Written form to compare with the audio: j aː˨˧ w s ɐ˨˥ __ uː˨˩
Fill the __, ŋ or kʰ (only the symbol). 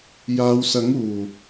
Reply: ŋ